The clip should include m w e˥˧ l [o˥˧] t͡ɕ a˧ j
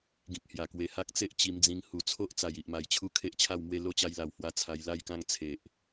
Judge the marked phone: correct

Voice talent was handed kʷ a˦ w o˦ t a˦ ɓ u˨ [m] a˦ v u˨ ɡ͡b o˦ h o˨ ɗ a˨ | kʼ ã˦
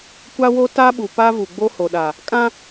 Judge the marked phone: incorrect: p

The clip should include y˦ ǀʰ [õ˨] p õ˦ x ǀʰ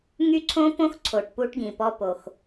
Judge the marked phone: incorrect: õ˦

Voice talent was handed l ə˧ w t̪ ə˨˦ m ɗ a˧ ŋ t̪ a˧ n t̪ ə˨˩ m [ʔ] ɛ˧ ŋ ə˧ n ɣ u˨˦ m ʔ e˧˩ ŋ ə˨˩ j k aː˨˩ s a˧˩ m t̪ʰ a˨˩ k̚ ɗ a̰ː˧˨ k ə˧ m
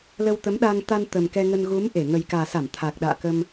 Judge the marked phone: incorrect: k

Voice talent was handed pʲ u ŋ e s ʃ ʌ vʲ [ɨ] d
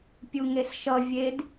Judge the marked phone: incorrect: e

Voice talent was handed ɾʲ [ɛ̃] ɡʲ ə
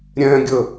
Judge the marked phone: correct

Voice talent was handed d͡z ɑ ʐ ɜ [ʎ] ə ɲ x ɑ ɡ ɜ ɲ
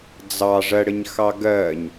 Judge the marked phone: incorrect: ɽ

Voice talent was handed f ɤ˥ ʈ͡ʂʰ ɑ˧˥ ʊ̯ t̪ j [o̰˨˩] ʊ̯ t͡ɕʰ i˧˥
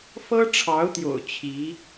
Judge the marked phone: correct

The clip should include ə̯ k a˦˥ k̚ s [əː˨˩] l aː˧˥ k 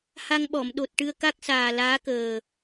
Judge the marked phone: incorrect: aː˨˩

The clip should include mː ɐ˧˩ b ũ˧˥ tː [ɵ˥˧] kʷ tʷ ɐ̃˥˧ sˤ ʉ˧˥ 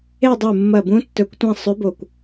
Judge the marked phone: incorrect: ɵ˧˥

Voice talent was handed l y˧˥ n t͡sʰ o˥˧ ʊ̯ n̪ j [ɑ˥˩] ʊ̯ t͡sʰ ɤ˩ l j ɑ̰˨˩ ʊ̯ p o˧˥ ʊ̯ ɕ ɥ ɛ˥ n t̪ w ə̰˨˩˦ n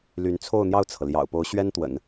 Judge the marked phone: correct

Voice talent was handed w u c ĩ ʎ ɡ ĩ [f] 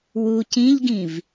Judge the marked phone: incorrect: v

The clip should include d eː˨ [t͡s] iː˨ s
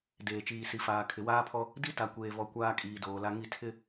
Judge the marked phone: incorrect: t͡ʃ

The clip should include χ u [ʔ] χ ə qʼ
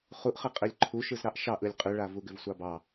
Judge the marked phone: correct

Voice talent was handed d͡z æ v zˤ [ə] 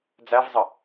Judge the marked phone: correct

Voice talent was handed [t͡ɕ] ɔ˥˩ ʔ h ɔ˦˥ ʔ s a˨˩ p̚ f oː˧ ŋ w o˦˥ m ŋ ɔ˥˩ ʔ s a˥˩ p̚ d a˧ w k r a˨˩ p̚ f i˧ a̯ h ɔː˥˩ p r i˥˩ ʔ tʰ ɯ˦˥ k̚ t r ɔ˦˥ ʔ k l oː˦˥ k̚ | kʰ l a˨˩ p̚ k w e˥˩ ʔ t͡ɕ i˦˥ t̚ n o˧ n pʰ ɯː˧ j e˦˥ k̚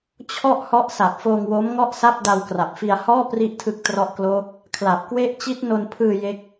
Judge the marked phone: incorrect: t͡ɕʰ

